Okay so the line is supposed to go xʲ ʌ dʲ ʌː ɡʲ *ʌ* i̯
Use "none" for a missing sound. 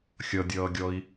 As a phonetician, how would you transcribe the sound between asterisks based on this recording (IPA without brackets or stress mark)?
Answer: ɔ